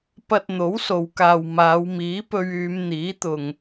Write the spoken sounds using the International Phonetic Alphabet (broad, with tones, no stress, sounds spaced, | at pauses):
p ɐ˧ t̚ n̪ o˨˥ w s o˨ w k aː˨ w m aː˨˧ w m iː˨˥ p ɵ˧ ɥ yː˨˧ m n̪ iː˨˥ t̪ ʊ˨ ŋ